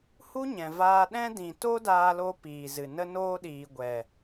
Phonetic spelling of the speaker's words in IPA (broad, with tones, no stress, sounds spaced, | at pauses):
h u˦ ɲ ɛ̃˨ v aː˧ ɗ ɛ̃˦ d ĩ˨ t o˦ d aː˧ l o˧ p iː˨ z ɨ˨ n ə˦ n oː˧ ɗ iː˨ ɡʷ ɛ˨